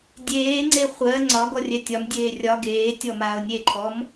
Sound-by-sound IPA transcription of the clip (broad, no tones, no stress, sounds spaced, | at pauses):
dʲ eː ŋ͡ǀ e χʷ ɜ ŋ͡ǀ ɒ ɡ ɔ rʲ ɛ tʲ ɒ m dʲ eː rʲ ɒ ɡ eː tʲ ɔ m aː ʊ̯ nʲ e ǃʰ ɔ m